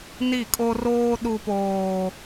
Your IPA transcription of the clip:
ni˦˨kʼo˦roː˦ ɗu˦poː˦

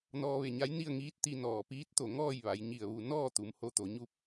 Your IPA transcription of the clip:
nɔː˧ʋe˧˩ɲa˧˥j ni˥˨ə̯ŋiː˧˥t̚ t̪i˧nɔː˧˩ piː˧˥t̚t̪o˧˩ ŋɔː˥˨jʋa˩˧jɲi˧˩ə̯ ʋu˧˩ nɔː˥˨ t̪u˩˧mho˧t̪o˩˧ ɲu˧p̚

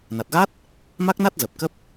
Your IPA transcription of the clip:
na˨˩t̚ɣa˦˥t̚ | ma˦˥k̚na˦˥t̚ zə˨˩p̚kə˦˥p̚

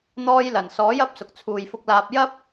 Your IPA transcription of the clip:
n̪ɔː˧jlɐ˨˩n sɔː˨˥jɐ˨˥p̚ sʊ˨k̚t͡sʰuː˨jfʊ˧k̚laː˧p̚ jɐ˥p̚

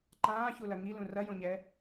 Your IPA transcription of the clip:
ǃãːçulɐ ŋilũ rɐjõɲɛ

